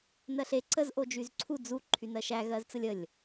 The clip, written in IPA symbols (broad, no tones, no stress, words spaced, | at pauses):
nɜɬe ǀəz ʔod͡ʒyzǀʰu d͡zu ǃʰynɜʃæ ɣɜzt͡səlʲəlʲ